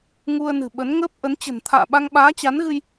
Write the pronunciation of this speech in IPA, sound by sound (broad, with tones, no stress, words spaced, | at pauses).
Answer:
ŋu˧ə̯nɨ̤˨˩ɓə˨˦n ŋəː˦˥p̚ʔə˨˦n t͡ɕə̤˨˩nt̪ʰa̰ː˧˨ɓa˧ŋ ɓaː˨˦t͡ɕa˨˦n ɣɨ˧j